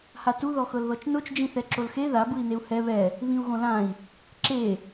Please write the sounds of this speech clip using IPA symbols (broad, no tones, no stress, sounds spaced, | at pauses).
h a t u ð ɔ x ɤ l ð ɔ t͡ʃ n o t͡ʃ d͡ʒ ĩ θ ɛ ǁ o l x e ð a b ɯ i̯ n e u̯ h ɛ β ɛ | β ĩ u̯ ɣ õ l ã i̯ | ǁ e